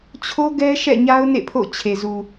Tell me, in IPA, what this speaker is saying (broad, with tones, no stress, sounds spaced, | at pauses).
t͡ɕʰ o˦ ɡ ɛ˦ ʃ ɛ̰˦˨ ɲ a˦ ʊ̯ n ḛ˦˨ pʰ o̰˦˨ t͡ɕʰ e˨ z u˨